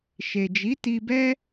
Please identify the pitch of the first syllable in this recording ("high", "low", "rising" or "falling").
low